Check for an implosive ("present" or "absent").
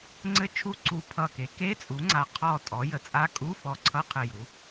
absent